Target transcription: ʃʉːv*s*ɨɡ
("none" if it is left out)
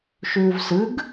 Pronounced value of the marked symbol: s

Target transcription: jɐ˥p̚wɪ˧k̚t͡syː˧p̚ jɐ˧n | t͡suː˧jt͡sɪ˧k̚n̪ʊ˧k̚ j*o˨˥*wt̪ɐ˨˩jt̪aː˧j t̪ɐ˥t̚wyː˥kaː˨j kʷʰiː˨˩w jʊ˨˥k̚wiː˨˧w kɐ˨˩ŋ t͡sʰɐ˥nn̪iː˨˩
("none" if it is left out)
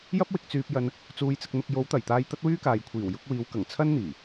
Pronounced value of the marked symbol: o˨˥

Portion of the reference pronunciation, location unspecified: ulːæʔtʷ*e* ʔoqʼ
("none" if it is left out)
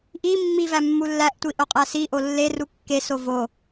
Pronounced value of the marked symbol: i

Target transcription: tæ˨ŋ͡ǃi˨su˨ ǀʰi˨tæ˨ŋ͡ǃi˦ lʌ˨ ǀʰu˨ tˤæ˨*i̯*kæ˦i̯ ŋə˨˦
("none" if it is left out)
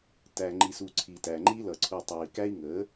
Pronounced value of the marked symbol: i̯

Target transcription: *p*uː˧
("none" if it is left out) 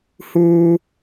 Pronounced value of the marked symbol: h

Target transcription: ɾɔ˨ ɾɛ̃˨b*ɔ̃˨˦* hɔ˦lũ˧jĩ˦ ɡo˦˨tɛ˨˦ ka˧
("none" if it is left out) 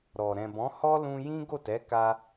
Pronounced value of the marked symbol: ɔ̃˨˦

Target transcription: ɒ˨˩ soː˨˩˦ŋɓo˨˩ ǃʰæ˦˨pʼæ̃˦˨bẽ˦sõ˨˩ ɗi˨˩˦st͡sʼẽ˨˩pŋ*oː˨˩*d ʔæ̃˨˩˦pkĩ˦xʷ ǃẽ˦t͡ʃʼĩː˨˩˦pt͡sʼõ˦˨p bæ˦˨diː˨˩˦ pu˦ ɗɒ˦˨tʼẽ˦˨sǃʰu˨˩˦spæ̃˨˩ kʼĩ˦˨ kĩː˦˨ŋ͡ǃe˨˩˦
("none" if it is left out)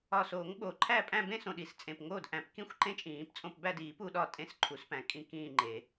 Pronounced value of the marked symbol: oː˦˨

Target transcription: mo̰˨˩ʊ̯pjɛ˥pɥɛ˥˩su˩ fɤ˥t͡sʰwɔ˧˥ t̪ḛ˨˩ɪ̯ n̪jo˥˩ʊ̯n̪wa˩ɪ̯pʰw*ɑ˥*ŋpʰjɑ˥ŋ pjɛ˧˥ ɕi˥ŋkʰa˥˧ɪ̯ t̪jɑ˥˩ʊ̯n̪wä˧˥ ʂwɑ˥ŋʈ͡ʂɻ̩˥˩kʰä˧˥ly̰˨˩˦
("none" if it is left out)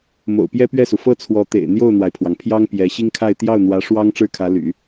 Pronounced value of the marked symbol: ɑ˩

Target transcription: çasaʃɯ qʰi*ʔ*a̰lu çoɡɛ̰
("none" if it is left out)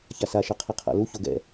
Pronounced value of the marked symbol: qʰ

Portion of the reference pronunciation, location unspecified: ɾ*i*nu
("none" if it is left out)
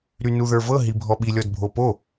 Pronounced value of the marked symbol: y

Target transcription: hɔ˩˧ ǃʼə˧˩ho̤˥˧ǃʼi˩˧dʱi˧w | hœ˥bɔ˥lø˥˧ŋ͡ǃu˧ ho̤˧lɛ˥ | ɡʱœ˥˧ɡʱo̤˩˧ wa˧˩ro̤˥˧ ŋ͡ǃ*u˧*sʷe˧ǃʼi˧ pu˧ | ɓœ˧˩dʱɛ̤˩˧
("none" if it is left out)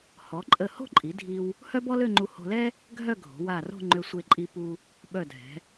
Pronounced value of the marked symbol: ø˧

